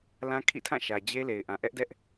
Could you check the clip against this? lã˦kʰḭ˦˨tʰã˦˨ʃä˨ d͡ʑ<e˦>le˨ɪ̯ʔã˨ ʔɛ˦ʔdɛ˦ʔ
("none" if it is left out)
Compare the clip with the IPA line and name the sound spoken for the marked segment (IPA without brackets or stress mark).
e˦